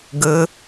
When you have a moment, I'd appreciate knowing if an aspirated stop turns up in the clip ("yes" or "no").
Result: no